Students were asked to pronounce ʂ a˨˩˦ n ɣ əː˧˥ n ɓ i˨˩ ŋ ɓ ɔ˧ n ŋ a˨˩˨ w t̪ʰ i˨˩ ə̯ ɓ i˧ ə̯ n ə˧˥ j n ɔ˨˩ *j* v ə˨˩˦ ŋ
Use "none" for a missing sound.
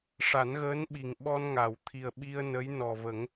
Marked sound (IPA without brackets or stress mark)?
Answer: none